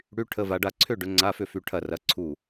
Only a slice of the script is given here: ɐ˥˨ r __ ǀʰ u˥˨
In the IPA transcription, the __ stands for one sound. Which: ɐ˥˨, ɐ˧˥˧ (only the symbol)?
ɐ˧˥˧